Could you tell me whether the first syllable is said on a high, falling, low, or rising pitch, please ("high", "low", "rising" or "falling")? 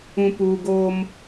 low